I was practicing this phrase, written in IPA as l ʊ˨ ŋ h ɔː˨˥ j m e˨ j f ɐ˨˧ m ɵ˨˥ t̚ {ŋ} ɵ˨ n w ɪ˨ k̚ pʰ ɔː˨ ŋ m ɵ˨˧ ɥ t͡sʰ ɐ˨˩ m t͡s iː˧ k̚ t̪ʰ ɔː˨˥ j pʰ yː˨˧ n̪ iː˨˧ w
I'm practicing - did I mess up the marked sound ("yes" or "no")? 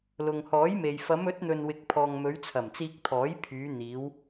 yes